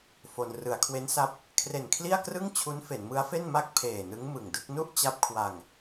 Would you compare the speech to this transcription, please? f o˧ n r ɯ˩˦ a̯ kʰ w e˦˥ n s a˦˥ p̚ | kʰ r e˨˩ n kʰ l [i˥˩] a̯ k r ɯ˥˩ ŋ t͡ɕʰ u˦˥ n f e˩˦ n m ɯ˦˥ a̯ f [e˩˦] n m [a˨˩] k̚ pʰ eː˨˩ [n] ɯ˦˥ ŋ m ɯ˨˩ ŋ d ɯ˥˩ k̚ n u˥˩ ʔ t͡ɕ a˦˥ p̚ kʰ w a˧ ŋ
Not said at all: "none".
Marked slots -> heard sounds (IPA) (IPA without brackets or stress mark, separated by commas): i˥˩, e˥˩, a˥˩, n